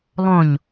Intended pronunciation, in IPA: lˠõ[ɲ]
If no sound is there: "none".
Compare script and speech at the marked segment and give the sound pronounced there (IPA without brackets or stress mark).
ɲ